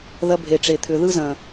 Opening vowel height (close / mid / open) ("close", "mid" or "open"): open